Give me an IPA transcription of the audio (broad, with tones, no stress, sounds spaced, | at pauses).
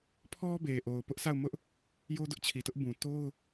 pʰ ɔ˦ b e˨ ʔ o˨ ʊ̯ p ʊ˦ ʔ s a˦˨ ʊ̯ m ʊ˦ ʔ | j o˦ d ʊ˦ ʔ t͡ɕʰ i˨ t ʊ˦ ʔ b ũ˨ t o˦ ʊ̯